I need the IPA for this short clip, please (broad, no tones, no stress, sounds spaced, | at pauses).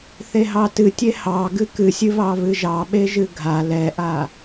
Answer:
θ e ɦ ɑ t ɨ tʲ e h ɑ ɡ ɨ k ɨ sʲ ɨ β ɑ β ɨ ʒ ɑ ɓ e ʒ ɨ ɡʱ a l ɛ ʔ a